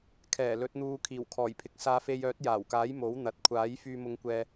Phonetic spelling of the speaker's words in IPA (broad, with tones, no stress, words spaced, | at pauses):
kʰɛː˨˩lɵ˨˥t̚n̪uː˧ kʰiː˨˩wkʰɔː˨˩jpʰɪ˨˥k̚ saː˧fe˧jœː˨˥t̚ jaː˨˩wkaː˨˥j mo˨˥wn̪ɐ˨t̚ kʷʰaː˨˥j fyː˧mʊ˧ŋkʷɛː˧